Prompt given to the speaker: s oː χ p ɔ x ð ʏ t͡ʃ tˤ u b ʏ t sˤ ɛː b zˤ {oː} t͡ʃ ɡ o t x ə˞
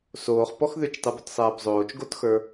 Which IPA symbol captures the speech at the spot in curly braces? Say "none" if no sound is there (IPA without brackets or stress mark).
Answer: oː